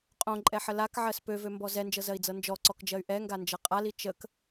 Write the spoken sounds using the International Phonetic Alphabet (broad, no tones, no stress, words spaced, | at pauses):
qʼõǃʼɛħə lakʕɜs pøvømbɔ zɛnd͡ʒɤzɜi̯d͡zɤ nd͡ʒɔǀɔkd͡ʒɜy̯ ʔɛŋɡand͡ʒɤ qʼali t͡ʃək